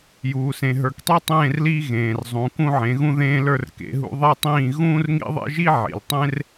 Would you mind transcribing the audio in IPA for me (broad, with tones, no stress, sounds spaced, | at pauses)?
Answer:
j uː˨ s ẽ˨ ɦ ə˞˨ k tˤ e˦ tˤ ẽː˦˨ r l iː˦ ɣ ẽː˨ r zˤ ũ˨˦ k ũ˦ ʕ ẽ˨˦ ɣ ũ˦ ð ẽː˦ l ə˞˦ r k ḛ˨˦ ɦ ṵ˦ ðˤ e˦ tˤ ĩː˦˨ ɣ ũː˦ r ŋ ḭ˦ ðˤ ḛ˦ ʒ i˦ ʕ ḭ˨ l tˤ ẽ˦ r